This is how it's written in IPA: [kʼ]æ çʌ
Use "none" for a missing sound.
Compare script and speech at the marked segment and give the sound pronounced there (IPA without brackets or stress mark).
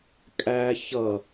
kʼ